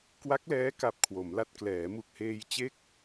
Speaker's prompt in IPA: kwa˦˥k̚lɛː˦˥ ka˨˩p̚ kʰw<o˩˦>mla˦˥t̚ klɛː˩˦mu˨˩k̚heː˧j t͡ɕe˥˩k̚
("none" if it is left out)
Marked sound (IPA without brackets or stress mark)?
o˩˦